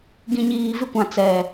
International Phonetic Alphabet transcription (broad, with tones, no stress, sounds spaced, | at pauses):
ɡ ĩ˨ ɲ iː˨ v ɪ˦ kʷ ã˨ t͡s ɛ˨